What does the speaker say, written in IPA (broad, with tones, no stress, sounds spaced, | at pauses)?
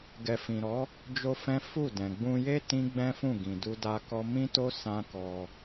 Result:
ɡ ɛ˨ f ĩ˨ ɾ ɔ˨˦ | d͡ʒ o˦ f ɛ̃˦ f u˦˨ d ɛ̃˨ ɡ͡b ũ˧ j e˦ t ĩ˦ ɡ͡b ɛ̃˦ f ũ˦˨ ɡ ĩ˨ d u˧ d a˧ k ɔ˧ m ĩ˦ t o˦ s ã˦ k ɔ˧